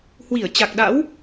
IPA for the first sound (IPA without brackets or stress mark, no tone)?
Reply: h